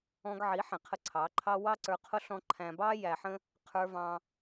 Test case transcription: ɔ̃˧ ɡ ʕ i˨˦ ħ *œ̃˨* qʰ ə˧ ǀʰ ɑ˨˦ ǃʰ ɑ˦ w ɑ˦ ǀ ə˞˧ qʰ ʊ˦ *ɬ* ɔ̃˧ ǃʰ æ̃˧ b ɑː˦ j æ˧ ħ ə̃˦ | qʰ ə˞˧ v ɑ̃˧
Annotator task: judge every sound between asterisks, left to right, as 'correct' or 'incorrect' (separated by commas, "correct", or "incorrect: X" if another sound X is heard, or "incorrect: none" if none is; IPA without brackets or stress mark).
incorrect: ɛ̃˨, correct